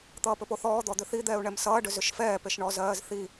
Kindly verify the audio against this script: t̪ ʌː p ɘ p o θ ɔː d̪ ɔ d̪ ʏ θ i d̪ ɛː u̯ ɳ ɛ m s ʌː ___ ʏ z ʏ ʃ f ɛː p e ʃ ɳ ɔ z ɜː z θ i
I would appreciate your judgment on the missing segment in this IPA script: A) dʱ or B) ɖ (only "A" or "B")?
B